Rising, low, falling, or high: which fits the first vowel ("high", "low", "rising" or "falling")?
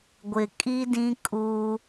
low